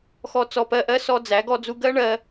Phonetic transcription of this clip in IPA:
xɔ˧ t͡sɔ˧pɜ˧ʔɜ˦ sɔ˦d͡zæ˨˦ ɡɔ˧d͡zu˧ ɡɜ˦ɳɜ˧

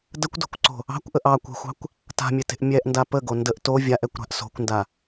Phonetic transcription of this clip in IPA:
dəkʷdo̤kʷǀo̤ | ɑ̤kʷʔəʔ ɑkʷɛ̤xʷɑ̤kʷ | ta̤mʲete̤ʔ mʲɛʔnda pəɡo ndəʔ to vʲaʔɛkʷɾa̤ʔ so̤kʷnda

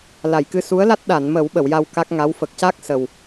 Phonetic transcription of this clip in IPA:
la˨˩˨jkɨ˧ su˧˥ə̯ la˦˥t̚ɗa˨˩˨nmə˨˩˦w ɓə˨˩˨wja˧w ka˦˥k̚ŋa˧˥w fə˨˩k̚ca˦˥k̚ sə˨˩w

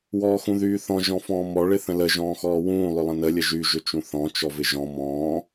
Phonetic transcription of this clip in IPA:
wɔːxũðyːθɔ̃ ʒɔ̃fɔ̃ːmɔ ɭɪθə̃lə ʒɔ̃ːxɔːwũː lˠʏlˠə̃nə lʲəʒy ʒʏt͡ʃũθɔ̃ t͡ʃɔvɪʒɔ̃ mɔ̃ː

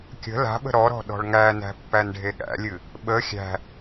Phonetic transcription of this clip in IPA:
kʲə̤ la̤ɓə̤ ɾɔɾɔ̤ ɗɔ̤ɭŋænæ̤ pːænɖʱeɠæ̰lʲɨ | ɓə xʲæ̤

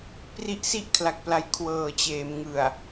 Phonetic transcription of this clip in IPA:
pri˦˥ʔsi˥˩ʔkʰla˨˩k̚pla˨˩j kʰwɤː˨˩t͡ɕeː˩˦m ŋɯ˨˩a̯

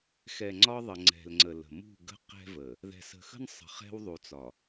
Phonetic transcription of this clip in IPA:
xɛ˨ŋ͡ǀɒ˦ðˤə˨ ŋ͡ǀɛ̤˨lŋ͡ǀə˨lə̤˨ mṳ˦˨ɡə̤˦qɛ̤˦və˨ | ðɛ̤˨sə̤˨xə̤˦nsˤə̤˨ χɛ̤˦wðˤu˨t͡sɒ˨

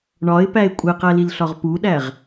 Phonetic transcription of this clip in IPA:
ɳɒɪ̯pæɪ̯ kʷʼeqælilɬɒʁ puɗæʁ

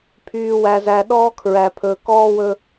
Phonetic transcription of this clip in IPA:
pʰyː˨wæ˨zæ˨ ɗɔː˦kʰɹæ˨pʰɵ˨ kɔː˦wɵ˦

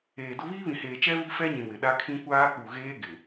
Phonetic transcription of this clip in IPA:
eː˨dʊ˦ βiː˦βĩ˨ heː˨t͡ʃɛ˦ βi˦fɛ˦ɲĩ˨ wɪ˨ɗa˦kʰĩ˦ kʷaː˦k͡pu˨ ɣeː˦ ɡɪ˨

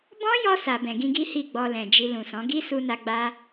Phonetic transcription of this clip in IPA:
bɔ̃˦jɔ˧ sa˨bɛ̃˨ɡĩ˧ɡi˦ hi˦˨ɡ͡bɔ˧lɛ̃˨ d͡ʒi˨ lũ˨sɔ̃˨˦ ɡi˦su˧na˧ ɡ͡ba˦

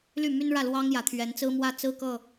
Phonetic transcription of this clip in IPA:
ly˥˨my˦nɻä˥˨ lwɑ˦ŋjä˨˩ t̪ʰɥɛ˨˦n t͡sɹ̩˦mwä˥˨ t͡sɹ̩˦kɤ˥˨

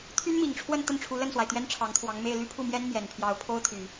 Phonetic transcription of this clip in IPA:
t̪ʰy˥nmi˨˩ŋʈ͡ʂʰwə˥˧n t̪ə˥˩nʈ͡ʂʰu˧˥lə˥˩nswa˩ɪ̯ t̪ɥɛ˥nʈ͡ʂʰɑ˧˥ŋt̪ʰwɑ˧˥ŋme˥˧ɪ̯ ly˥˧pʰu˥˩mjɛ˥n mjɛ˨˩npʰjɑ˧˥ʊ̯pʰo˥ʊ̯t̪ʰy˨˩˦

